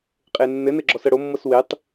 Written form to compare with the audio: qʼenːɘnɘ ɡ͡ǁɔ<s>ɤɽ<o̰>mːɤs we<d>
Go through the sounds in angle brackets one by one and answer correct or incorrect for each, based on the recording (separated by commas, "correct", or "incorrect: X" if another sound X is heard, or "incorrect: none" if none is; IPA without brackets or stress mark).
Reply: correct, incorrect: o, incorrect: tˤ